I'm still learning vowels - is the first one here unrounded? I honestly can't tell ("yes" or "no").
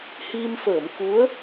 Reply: yes